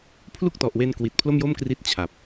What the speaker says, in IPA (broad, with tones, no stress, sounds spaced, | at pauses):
pʰ l u˥˩ k̚ t ɔ˨˩ ʔ w e˧ n k w i˨˩ t̚ pʰ l o˥˩ m j o˥˩ m k r i˦˥ t̚ t͡ɕʰ a˨˩ p̚